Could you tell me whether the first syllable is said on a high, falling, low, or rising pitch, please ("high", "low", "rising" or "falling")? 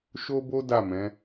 high